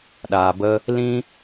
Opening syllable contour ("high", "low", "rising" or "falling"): low